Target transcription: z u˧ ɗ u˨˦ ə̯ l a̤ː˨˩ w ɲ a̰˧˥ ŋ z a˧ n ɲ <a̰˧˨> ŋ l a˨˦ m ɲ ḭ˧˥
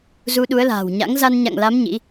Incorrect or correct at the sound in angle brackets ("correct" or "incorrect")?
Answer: correct